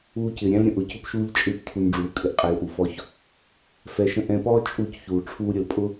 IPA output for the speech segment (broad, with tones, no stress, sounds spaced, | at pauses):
uː˧ c ɪː˨ ɾʲ æ̃˦ l ɾʲ ə̃˨ ʔ ʊ˨ c ʊ˧ p ʃ uː˧ ʎ t͡ʃʼ ɪː˧ p tʰ u˧ n ɖ͡ʐ uː˨˦ kʼ ɪ˧ ʔ qʼ æ˧ l ʔ u˨ f ɔ˧ ç | f ɛ˨ ʃ ə̃˧ ʔ ɛ̃˨ p ɔː˦ t͡ʃʼ u˦˨ c ç uː˨ ʈ͡ʂʰ uː˧ ɾʲ ə˨ l pʼ ʊ˦